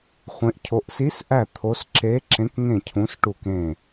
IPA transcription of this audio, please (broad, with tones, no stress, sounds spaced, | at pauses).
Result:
χʷ ẽ˧˥ ʔ cʰ o˧˥ ʔ s i˧˥ s ʔ æ˦˨ t̪ʰ o˧˥ s ǁ e˧˥ ǁ ẽ˧˥ k ŋ ẽ˦˨ cʰ ũ˧˥ s ʈ u˦˨ k ẽ˦˨